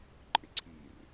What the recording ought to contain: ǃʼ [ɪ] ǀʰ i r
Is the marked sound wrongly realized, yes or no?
no